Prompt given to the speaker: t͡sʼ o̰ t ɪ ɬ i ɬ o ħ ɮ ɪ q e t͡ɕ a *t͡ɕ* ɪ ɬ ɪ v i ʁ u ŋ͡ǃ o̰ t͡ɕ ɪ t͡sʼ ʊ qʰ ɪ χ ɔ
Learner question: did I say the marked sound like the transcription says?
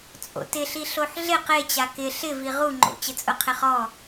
no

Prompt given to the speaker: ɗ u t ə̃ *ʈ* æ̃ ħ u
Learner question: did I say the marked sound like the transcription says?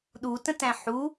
no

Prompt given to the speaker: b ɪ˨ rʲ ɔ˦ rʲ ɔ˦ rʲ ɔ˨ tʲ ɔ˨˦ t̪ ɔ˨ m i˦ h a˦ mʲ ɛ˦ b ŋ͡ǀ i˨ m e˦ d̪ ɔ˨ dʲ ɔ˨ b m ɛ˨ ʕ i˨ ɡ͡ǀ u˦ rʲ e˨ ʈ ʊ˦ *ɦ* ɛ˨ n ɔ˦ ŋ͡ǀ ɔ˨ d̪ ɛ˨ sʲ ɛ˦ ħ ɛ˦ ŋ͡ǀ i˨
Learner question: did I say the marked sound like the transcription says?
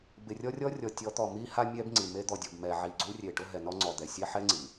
yes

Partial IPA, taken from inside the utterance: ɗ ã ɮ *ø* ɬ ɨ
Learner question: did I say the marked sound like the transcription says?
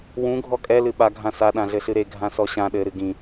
no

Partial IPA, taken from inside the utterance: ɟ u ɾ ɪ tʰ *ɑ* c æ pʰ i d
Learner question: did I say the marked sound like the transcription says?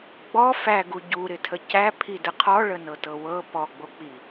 no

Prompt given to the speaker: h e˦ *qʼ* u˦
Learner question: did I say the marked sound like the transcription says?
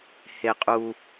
yes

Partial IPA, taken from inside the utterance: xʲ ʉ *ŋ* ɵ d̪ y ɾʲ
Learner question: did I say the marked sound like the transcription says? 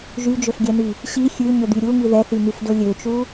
no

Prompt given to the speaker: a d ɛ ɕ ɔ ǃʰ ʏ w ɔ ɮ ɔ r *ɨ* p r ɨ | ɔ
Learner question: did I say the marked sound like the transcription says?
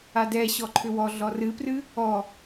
yes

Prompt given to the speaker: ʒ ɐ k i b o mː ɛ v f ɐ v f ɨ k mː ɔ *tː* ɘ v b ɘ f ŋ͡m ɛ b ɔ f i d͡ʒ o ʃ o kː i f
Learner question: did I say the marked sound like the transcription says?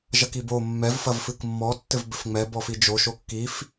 yes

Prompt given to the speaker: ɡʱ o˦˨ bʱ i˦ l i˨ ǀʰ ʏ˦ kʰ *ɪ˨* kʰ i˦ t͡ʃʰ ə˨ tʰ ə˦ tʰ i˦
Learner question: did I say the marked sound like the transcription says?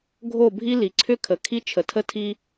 no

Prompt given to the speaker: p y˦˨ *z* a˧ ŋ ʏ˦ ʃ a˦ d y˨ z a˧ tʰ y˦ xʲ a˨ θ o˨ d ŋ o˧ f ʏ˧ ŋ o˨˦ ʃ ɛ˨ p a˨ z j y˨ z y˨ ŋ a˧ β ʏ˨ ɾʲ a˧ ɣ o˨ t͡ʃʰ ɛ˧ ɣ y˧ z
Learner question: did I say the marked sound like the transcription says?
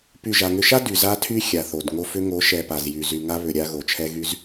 no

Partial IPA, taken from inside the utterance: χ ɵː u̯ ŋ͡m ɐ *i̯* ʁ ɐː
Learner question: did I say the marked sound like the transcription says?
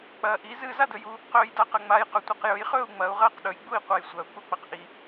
no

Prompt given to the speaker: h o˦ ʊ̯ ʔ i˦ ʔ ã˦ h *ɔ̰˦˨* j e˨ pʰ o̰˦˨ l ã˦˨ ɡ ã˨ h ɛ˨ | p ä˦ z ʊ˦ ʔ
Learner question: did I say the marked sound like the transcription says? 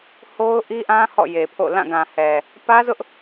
yes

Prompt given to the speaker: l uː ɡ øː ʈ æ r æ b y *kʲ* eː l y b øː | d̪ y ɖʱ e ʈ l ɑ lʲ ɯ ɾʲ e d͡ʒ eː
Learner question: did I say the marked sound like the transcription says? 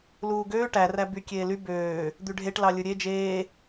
yes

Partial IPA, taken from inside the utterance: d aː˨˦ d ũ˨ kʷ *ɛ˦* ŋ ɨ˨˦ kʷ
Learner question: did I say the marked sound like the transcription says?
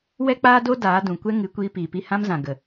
yes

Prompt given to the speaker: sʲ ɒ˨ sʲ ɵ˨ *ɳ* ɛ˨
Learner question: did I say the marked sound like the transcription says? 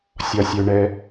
yes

